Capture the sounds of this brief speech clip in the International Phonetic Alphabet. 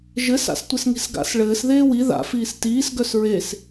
ʒɘs a̰stʷɘsŋi̤sɡa̰s ɭɘːs ðeːwi ða̰ fiːstiːs ɡœsɹes

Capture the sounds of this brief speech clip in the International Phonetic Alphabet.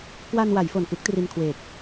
kwa˧nwa˩˦j fo˨˩nkɯ˥˩k̚ tri˧nkʰweː˨˩k̚

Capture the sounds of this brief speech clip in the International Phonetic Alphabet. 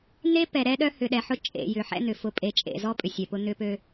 n̪e˦pɛ˨ ɾɛ˦ɗœ˦hʏ˨ɗɛ˨ ħʊ˦t͡ʃʼḛ˨jʏ˨ ħɛ̰˦n̪ʏ˨ fʊ˨pʼe˨t͡ʃʼḛ˨zɔ˦ pʼʏ˨sʲɛ˨pʊ˦ n̪ʏ˦pø˦

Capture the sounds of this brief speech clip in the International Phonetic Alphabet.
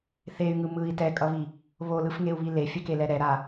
θey̯ŋɯ mɯi̯ tɛkʼʌβi | βolɯfŋeu̯βi lefʲɛkelɛ ɾɛɾa

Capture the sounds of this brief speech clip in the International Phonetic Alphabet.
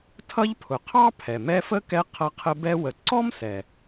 tʰʌ˦ʎpʰʊ˩qʰɑ˥ pʰɛ˩mɛ˦fə˥kɛ˦ qʰʌ˦qʰə˦bɛ˥ wə˨ ǀɔ˥msɛ˩

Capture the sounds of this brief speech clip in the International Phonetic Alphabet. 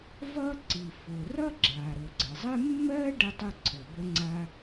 vʌ˥ǀi˩fʊ˩ rʌ˥ ɡ͡ǁa˩ ɾʊ˩ɡ͡ǀɘ˩zˤɘ˥ mːɜ˥ ɖə˥tˤʊ˥ǀʰɘ˩ bə˥ŋ͡ǀa˥

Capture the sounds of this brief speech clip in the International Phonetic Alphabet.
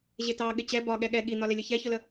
ʑɪtɑ ɠɪt͡ɕɛ bɒ ɠɛɠɛ ɠin̪ɒlɪlʲə çɛçʊlə

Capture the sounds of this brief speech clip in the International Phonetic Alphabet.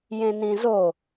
jẽnĩzo

